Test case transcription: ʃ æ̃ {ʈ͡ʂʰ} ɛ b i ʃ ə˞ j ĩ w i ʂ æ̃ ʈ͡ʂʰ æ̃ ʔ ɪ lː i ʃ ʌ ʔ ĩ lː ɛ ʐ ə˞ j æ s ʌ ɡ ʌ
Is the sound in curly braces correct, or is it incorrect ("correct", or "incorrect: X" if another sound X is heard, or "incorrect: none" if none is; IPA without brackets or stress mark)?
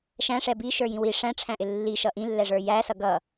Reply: incorrect: ʂ